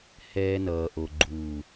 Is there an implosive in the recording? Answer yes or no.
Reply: no